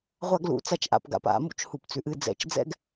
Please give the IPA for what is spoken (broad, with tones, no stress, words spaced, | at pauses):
ʁʷa˥ɡlṵ˩˥ t͡sa˥t͡ʃʔa̰˩˥pɡa̰˩˥p a̰˧˩˧ mṵ˥t͡ʃhu˧˩˧pt͡sʉ˩˥ʔɨ˧˥ d͡zɛ̰˧˩˧t͡ʃd͡zɛ̰˥ɡ